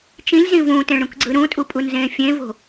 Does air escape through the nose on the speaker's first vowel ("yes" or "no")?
yes